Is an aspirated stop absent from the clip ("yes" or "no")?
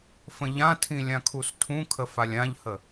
no